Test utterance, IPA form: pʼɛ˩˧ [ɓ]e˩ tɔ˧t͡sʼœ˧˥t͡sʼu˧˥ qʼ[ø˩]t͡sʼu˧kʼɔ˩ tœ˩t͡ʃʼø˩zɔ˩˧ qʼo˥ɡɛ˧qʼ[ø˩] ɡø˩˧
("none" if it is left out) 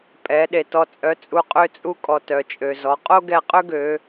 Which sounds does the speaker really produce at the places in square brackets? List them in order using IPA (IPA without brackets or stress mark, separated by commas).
ɗ, ø˧, ø˥